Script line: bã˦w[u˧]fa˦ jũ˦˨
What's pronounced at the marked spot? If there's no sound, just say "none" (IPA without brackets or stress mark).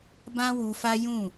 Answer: u˧